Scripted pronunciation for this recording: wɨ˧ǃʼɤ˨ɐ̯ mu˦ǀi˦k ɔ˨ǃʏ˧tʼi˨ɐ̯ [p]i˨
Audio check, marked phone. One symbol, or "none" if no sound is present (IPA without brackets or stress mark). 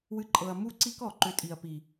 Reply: p